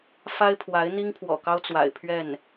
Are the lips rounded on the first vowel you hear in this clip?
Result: no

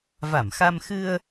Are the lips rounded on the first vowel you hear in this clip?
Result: no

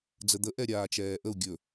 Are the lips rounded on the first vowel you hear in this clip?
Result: no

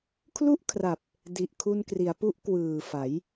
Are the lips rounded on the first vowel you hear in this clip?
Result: yes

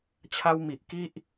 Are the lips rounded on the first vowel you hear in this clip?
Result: no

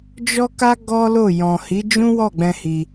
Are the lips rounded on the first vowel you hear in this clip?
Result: yes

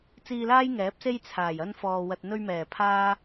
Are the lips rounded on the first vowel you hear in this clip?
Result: no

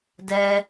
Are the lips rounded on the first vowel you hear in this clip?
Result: no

